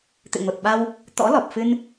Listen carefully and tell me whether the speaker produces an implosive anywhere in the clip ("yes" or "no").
yes